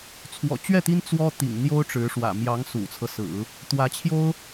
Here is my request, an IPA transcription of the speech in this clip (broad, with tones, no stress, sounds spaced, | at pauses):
t͡sʰ w ɔ̰˨˩ t͡ɕ ɥ ɛ˥˩ t̪ i˥ n t͡s w ɔ˥ t̪ ḭ˨˩ ŋ n̪ j o˥ ʊ̯ ʈ͡ʂ ɻ̩˧˥ ʂ w ä̰˨˩ m j ɑ˧˥ ŋ s ṵ˨˩ t͡sʰ ɤ˦ s ɹ̩˨˩˦ | t̪ w ä˧˥ t͡ɕʰ j o˥ ʊ̯